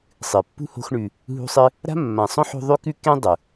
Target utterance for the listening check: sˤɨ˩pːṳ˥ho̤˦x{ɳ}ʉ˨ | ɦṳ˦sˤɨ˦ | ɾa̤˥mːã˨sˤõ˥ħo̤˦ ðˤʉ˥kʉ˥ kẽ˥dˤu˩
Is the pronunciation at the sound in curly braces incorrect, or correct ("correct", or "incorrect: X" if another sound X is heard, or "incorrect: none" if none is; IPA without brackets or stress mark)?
correct